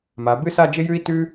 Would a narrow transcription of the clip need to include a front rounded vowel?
no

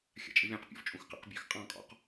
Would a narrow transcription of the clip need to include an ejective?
yes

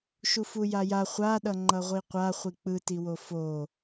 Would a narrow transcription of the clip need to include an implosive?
yes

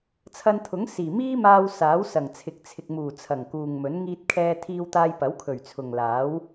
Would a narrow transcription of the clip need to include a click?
no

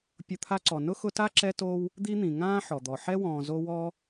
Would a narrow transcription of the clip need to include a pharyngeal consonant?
yes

